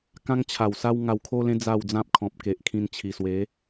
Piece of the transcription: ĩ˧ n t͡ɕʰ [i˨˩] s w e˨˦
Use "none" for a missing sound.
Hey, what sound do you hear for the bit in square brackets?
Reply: i˨˩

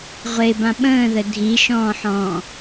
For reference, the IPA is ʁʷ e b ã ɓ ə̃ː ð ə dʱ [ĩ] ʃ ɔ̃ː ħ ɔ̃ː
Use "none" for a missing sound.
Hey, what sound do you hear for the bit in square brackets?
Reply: i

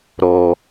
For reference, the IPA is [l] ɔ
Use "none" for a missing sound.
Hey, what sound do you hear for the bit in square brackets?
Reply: ɾ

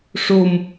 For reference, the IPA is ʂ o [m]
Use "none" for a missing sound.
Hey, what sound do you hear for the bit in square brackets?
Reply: m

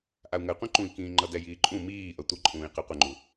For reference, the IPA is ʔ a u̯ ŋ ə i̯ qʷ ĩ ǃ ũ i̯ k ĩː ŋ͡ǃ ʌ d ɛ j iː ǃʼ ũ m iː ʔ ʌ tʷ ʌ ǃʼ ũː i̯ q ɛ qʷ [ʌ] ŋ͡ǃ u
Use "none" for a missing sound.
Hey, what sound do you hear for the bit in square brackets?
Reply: ə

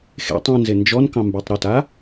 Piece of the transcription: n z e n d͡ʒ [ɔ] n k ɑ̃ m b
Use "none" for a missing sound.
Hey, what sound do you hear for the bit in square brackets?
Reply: ɔ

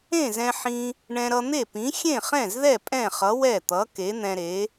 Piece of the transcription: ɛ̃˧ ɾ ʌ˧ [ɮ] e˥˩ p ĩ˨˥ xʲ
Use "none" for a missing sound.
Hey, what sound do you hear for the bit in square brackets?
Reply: n̪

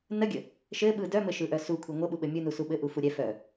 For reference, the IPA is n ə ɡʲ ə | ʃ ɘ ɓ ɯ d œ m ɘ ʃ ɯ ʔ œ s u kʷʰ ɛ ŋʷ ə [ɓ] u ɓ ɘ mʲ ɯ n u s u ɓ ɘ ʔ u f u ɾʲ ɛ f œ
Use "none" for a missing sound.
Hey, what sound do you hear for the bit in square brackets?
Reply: ɓ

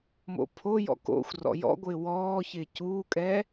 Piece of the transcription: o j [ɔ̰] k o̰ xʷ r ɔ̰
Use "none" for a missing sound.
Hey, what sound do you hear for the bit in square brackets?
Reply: ɔ̰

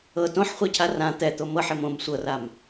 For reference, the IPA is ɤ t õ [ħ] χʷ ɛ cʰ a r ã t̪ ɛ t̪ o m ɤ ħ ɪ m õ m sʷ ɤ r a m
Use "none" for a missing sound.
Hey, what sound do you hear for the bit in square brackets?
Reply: ħ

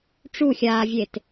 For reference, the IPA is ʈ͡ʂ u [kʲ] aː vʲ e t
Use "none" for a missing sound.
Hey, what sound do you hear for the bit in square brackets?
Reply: xʲ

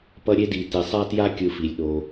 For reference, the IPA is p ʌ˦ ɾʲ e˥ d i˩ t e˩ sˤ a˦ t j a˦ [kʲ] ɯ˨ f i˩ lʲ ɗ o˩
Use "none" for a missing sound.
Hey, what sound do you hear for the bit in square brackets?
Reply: kʲ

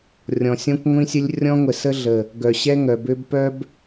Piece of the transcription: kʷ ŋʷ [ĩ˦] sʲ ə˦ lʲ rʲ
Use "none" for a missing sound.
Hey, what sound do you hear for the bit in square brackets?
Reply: ĩ˦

